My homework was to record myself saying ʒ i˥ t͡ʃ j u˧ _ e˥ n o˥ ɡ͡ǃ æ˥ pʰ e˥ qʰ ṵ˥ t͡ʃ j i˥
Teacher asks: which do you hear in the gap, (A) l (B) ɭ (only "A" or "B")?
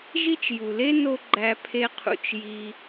A